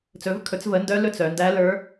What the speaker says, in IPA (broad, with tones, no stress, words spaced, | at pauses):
t͡sɵ˩˧vkʰɵ˩˧t͡svə˩˧ ndœ˧˥ lɵ˧˥t͡s œ˩˧ndæ˧˥ lə˞˧˥